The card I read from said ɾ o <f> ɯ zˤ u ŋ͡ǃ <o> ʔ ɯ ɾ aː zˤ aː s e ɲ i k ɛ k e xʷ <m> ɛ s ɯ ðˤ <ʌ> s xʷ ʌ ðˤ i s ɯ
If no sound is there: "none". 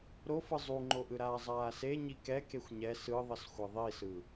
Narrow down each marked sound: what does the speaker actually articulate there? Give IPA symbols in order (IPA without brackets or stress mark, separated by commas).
f, o, ɲ, ʌ